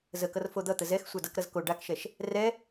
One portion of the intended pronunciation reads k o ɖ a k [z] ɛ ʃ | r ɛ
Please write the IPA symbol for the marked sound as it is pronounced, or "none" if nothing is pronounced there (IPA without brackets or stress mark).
ʃ